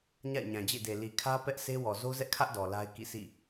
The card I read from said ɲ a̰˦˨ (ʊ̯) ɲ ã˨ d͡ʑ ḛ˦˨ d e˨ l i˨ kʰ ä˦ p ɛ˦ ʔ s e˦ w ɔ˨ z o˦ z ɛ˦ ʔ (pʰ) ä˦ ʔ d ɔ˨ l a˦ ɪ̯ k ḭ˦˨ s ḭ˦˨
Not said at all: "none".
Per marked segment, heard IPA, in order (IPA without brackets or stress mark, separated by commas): ɪ̯, kʰ